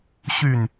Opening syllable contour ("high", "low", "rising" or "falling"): falling